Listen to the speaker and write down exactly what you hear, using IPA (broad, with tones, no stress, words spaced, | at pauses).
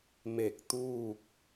me˧˩k̚t̪uː˥˨k̚